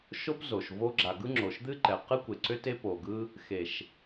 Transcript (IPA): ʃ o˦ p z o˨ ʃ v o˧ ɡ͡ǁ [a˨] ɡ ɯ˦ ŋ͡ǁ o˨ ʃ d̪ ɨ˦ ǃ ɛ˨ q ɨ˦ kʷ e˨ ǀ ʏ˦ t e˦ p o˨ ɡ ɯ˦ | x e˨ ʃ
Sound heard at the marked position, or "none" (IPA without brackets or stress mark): a˨